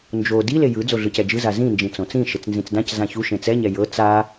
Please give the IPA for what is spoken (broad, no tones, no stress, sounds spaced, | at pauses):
n d͡ʒ o d i l e j ɯ d͡z o ɮ ɯ c ɛ d͡ʒ ɯ z a z ĩ n d͡ʒ ĩ t͡s õ t͡s ĩ ʃ e t͡s n z ĩ t͡s d ã c z ã ç u ʃ ẽ t͡s ɛ ɲ ɛ j ɤ t͡s a